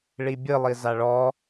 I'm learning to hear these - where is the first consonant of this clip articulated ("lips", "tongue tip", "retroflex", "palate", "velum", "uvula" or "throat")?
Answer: retroflex